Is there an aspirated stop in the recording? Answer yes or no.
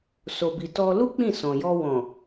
no